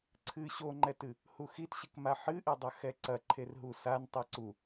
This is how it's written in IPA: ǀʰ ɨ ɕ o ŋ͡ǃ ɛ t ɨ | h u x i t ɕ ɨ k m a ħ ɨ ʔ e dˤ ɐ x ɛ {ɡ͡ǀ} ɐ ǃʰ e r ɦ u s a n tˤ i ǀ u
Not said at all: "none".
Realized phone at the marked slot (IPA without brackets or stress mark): ǀ